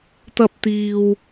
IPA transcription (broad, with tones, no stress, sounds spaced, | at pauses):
t̪ ɐ˥ p̚ t̪ iː˧ w